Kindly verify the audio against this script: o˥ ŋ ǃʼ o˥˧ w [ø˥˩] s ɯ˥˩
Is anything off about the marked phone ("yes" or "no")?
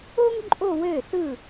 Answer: no